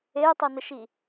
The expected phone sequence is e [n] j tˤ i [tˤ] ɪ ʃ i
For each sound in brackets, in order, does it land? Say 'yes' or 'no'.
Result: no, no

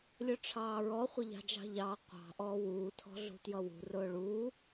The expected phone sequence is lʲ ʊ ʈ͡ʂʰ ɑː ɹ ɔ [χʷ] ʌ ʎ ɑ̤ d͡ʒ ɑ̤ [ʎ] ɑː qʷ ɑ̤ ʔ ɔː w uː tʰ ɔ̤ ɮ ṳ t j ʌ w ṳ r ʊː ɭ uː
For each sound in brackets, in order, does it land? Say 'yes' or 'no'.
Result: yes, yes

